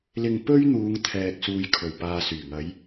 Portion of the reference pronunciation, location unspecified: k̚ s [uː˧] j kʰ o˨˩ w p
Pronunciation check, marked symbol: incorrect: uː˨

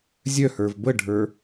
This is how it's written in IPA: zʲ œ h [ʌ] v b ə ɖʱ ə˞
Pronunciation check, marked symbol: incorrect: ə˞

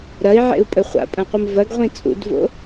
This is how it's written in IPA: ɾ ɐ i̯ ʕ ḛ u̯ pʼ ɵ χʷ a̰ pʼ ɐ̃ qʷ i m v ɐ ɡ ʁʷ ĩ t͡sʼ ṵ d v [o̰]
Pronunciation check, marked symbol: correct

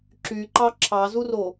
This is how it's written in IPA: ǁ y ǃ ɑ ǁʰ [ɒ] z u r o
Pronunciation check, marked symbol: incorrect: ɑ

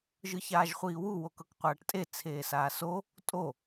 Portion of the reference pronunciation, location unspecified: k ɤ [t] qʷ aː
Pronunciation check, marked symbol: incorrect: k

